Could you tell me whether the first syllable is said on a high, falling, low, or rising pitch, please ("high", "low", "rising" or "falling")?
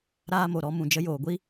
high